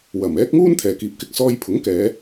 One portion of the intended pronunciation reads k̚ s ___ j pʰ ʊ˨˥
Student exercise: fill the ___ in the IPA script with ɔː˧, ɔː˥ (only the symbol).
ɔː˧